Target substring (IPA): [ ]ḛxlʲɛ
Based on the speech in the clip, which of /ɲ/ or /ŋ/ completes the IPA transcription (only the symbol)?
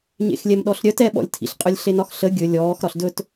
ɲ